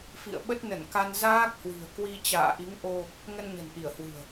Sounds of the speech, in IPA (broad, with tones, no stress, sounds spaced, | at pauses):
f ḭ˧˨ ə̯ ɓ ə˦˥ t̚ n ə˧˩ n k a˧ n z aː˦˥ k̚ h w i̤˨˩ ə̯ k w i˧ t͡ɕ a̰ː˧˨ ʔ i˨˦ ŋ ʔ o˧ | ŋ ə˧ n ɲ ə̤˨˩ n ʔ i˧˩ ə̯ h w ɨ̤˨˩ ə̯